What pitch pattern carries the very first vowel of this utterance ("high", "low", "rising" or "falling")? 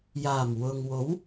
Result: low